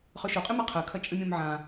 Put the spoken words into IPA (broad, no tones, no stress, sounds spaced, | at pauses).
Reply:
χ ɵ ʃ o qʼ ɨ m ɐ qʰ ɐ kʰ ɐ t͡ʃʼ ɨ mʲ õ m ʕ ã